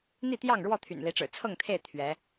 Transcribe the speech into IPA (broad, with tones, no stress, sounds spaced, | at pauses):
n̪ i˥˨ t̪ j ɑ˥˨ ŋ ɻ w ɔ˥˨ t̪ʰ y̰˨˩ n l i˨˦ ʈ͡ʂ ɻ̩˨˩ t͡sʰ ɤ˥˨ ŋ t̪ʰ e˥˨ ɪ̯ t̪ʰ ɥ ɛ˨˦